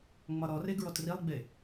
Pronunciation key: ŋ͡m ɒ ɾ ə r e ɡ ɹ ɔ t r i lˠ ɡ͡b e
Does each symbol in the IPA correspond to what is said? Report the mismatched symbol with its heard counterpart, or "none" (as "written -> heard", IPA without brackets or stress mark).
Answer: ə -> ɔ